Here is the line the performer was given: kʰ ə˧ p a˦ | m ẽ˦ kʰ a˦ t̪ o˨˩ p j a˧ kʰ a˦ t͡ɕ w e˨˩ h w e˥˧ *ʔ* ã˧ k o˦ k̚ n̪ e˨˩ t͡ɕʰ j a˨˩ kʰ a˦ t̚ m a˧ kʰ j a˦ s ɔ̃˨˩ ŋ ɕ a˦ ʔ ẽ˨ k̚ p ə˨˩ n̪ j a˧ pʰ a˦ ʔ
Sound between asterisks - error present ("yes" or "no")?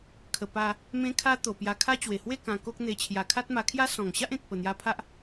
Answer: yes